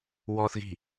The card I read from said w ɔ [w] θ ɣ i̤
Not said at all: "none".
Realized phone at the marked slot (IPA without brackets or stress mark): none